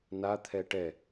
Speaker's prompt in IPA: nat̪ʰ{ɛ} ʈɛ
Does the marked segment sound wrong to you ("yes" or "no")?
no